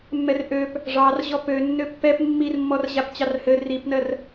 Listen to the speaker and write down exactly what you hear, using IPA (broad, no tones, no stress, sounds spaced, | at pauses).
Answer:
mː ɛ r ʔ ø p | ʐ ɑ r ʑ ɔ p ø nː ø pː ɛ p mː i r mː ɔ r ʑ a p t͡ɕ ɑ r h ɘ r i p n ɜ r